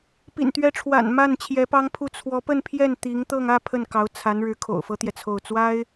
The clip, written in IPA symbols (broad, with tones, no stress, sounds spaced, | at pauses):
p ḭ˨˩ n t̪ ɥ ɛ˧˥ ʈ͡ʂʰ w a̰˨˩ n m a˥˩ n t͡ɕʰ j ɛ˧˥ p ɑ˥ ŋ pʰ u˥˩ t͡sʰ w ɔ˧˥ p ə˥˧ n pʰ j ɛ˥˩ n t̪ i˧˥ ŋ t̪ ɤ˥˧ ŋ ä˥˧ pʰ ə˥˩ n k ɑ˧˥ ʊ̯ t͡sʰ a˧˥ n ɻ ɻ̩˧˥ kʰ o̰˨˩ ʊ̯ f ɤ˥ t̪ j ɛ˨ t͡sʰ o˥˩ ʊ̯ t͡s w a˥ ɪ̯